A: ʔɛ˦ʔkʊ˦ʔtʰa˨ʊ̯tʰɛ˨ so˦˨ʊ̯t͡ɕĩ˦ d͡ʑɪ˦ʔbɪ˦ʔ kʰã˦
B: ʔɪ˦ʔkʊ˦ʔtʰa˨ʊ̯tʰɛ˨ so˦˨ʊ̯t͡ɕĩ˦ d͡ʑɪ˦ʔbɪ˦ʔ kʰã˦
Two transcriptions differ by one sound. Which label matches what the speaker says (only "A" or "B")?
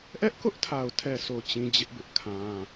A